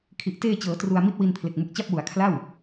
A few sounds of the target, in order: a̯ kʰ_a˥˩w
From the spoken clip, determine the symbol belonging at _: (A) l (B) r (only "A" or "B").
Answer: A